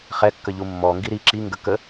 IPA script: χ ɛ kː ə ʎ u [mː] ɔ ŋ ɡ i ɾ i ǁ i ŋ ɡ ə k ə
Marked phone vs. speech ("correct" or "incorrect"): correct